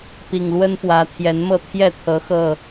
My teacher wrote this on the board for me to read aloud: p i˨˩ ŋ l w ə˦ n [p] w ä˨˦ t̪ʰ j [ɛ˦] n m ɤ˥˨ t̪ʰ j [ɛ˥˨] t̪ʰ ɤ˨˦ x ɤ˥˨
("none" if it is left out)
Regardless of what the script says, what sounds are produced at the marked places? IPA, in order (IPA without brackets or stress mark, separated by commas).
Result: p, ɛ˨˦, ɛ˥˨